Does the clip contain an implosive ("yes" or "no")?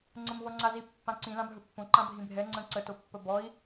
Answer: no